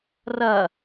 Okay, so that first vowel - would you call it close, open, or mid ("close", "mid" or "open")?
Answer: open